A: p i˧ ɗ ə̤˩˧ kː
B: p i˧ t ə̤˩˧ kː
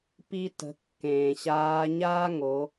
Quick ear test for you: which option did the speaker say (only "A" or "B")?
B